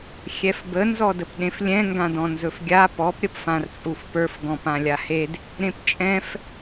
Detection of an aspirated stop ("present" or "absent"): absent